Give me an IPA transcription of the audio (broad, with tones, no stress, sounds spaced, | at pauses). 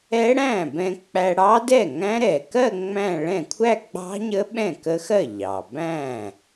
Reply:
ɛ˦˥ ɽ æ̃˥˩ b ɛ̃˧ k͡p æ˧ ɽ ɑ˦˥ d ɛ˥˩ ŋ æ̃˦˥ ɾ ɛ˩ k ɜ˥˧ ŋ͡m æ̃˥˧ ɭ ɛ̃˥˩ kʷʰ æ˥˧ ɡ͡b ɑ̤˦˥ ɲ ə˦˥ ɓ ɛ̃˥˩ k ə˦˥ x ɜ˥˩ ʎ ɑ˩ b æ̃˥˩